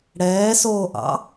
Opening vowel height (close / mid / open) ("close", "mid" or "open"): mid